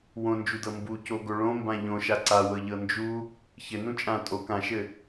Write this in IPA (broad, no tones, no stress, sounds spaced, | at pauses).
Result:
w õ n d͡ʒ u d ɤ m b u c o ɡ o ɭ õ m b ã ʎ õ ʃ a ǀ a w ɤ ʎ ɤ n d͡ʒ u | ç ɘ n ũ t͡ʃʼ ã tʼ o k ã ʃ ɘ